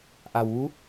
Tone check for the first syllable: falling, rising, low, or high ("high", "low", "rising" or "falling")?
low